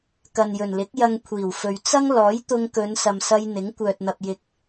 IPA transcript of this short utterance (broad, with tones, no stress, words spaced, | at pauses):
kɐ˨njɵ˨˩nlɪ˨˥k̚ jɐ˧ŋkʷʰiː˨˩wfɵ˨ɥ t͡sɐ˥ŋlɔː˨˥j t̪ʊ˧ŋkɵ˨˧n sɐ˧msɐ˥j n̪ɪ˨˥ŋkʷœː˨t̚n̪ɐ˨p̚jɪ˨k̚